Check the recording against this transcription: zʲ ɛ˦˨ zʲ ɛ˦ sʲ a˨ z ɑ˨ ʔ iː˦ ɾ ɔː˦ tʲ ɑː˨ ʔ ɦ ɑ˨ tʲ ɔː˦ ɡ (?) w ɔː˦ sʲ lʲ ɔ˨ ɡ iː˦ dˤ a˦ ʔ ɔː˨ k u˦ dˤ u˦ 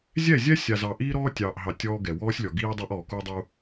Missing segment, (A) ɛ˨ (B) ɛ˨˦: A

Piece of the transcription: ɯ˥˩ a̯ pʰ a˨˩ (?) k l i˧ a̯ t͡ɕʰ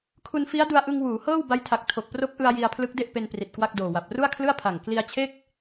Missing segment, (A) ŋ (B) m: A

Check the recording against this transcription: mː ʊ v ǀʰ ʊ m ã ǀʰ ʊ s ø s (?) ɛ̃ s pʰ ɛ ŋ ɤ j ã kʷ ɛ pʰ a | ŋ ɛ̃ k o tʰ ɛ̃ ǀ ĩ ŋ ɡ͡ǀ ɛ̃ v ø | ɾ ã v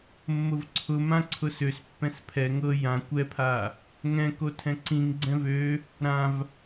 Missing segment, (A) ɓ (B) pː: B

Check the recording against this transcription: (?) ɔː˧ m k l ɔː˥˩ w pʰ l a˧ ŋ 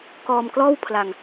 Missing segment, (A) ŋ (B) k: B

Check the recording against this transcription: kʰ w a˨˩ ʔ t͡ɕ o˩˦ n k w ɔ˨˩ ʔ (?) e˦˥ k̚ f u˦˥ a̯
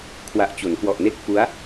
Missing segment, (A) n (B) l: A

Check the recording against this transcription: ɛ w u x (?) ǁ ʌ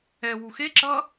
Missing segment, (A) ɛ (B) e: B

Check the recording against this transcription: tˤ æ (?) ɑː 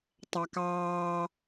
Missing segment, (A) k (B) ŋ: A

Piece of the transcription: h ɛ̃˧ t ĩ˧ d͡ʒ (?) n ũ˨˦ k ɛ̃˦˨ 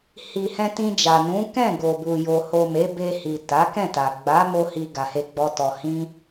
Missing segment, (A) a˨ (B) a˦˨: A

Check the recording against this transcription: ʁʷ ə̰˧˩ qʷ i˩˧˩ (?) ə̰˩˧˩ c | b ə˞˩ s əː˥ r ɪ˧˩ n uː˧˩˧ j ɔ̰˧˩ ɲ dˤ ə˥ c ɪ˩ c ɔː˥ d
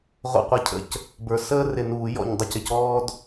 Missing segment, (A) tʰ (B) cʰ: B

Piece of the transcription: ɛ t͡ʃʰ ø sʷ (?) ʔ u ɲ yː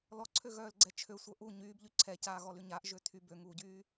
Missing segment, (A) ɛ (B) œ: B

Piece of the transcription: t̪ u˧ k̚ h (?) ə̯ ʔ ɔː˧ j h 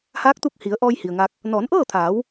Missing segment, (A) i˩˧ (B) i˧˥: A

